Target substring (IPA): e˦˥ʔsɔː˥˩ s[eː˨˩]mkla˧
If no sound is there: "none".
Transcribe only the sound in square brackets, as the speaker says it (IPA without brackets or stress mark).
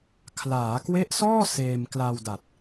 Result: eː˧